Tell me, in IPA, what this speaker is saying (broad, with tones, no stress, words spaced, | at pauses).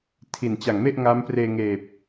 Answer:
tʰi˨˩nt͡ɕa˨˩ŋme˥˩ʔ ŋa˦˥mpreː˧ŋeː˨˩p̚